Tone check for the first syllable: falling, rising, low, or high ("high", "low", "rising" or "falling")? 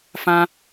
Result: high